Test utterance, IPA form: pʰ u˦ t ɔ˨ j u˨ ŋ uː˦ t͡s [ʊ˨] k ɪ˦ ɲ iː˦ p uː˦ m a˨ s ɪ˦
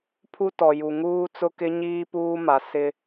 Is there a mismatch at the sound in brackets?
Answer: yes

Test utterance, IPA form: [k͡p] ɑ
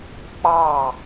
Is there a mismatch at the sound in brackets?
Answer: no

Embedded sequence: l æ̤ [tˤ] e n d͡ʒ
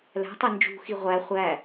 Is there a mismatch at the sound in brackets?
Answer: no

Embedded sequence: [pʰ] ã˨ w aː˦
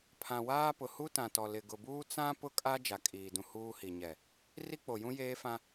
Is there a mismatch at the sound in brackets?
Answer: no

